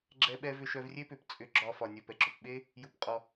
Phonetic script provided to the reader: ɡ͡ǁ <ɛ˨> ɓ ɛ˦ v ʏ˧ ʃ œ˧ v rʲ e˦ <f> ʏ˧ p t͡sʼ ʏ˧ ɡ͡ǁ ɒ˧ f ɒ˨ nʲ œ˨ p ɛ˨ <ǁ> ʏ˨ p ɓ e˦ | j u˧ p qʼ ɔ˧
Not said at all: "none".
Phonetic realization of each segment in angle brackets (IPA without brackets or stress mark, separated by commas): ɛ˦, p, ǁ